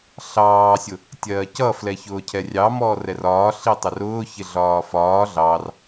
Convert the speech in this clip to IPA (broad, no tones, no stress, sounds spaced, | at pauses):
ɬ ɑː sʲ ʊ | tʲ ɜː c ʌ f l ɛ ç ʊː cʰ ɛ rʲ ɑ m ɔː r ɛ r ɒː ɬ i tˤ ɪ r ʊː ç ɪ ɮ ɒː f ɒː ɮ ɑ r